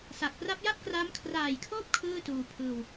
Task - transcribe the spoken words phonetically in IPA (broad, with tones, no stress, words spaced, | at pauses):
sa˨˩k̚pra˦˥p̚ja˥˩p̚kraː˦˥m kʰraː˨˩jkʰoː˦˥p̚ kʰɯː˥˩tuː˧pʰɯː˧w